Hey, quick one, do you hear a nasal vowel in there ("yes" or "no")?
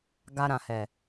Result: yes